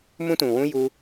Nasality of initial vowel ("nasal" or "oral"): nasal